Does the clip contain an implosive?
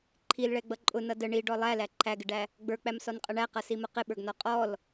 yes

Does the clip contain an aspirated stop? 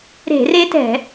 no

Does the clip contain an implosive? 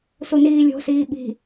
yes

